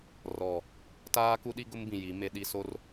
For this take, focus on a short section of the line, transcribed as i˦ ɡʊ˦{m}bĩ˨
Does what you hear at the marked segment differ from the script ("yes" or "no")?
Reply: no